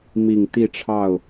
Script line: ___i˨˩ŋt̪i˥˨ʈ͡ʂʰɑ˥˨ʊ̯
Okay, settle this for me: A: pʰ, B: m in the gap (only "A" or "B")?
B